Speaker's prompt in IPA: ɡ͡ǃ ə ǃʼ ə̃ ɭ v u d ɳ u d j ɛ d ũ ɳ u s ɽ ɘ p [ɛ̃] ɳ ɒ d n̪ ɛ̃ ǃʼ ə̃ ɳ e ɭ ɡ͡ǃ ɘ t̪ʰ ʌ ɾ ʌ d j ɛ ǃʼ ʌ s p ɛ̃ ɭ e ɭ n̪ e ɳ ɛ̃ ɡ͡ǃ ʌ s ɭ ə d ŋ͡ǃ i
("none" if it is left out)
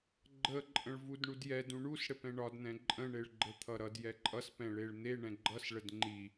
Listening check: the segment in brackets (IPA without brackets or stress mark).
ɛ̃